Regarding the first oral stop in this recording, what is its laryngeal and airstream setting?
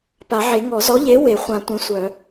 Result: plain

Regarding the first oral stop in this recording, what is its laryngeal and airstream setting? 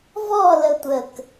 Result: plain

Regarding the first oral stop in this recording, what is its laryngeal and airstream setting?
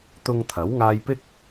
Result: plain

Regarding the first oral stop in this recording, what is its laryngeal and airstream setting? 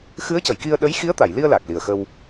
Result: plain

